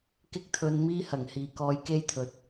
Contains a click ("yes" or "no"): no